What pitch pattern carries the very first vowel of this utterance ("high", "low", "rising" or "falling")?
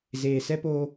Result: low